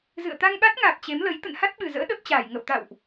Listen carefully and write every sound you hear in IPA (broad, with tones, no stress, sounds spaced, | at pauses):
z ɨ̰˧˨ ə̯ t̪ a˧ ŋ ɓ a˦˥ t̚ ŋ aː˨˩ p̚ t͡ɕ e˨˦ m l ə˨˦ j t̪ ə̰˧˨ n h a˦˥ t̚ ɓ ɨ˨˩ z ə̰ː˧˥ ɗ ə˦˥ p̚ t͡ɕ aː˧˩ j ŋ ə̰˧˨ w t̪ a̰˧˨ w ʔ